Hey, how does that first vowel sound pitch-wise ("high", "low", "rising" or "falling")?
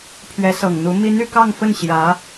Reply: rising